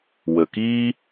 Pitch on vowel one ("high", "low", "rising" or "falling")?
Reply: low